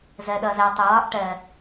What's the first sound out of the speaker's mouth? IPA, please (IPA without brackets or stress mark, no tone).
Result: z